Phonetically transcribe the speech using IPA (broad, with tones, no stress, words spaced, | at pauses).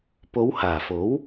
po˨˧w haː˨˩fo˨˥w